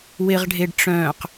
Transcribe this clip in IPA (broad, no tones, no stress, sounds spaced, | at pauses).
w ɪ ʁ ɖʱ e ɖ ʈ͡ʂ œ̃ː q